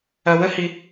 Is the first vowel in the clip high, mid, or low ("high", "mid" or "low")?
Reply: low